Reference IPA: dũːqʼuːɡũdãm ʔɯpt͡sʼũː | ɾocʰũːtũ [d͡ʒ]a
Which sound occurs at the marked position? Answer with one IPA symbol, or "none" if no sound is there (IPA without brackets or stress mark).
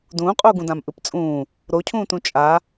t͡ʃʼ